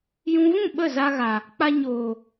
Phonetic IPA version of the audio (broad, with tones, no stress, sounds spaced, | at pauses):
j ũ˧ v ũ˦˨ ɓ ə˦˨ z a˧ ɣ a˨ | k͡p a˧ ɲ oː˨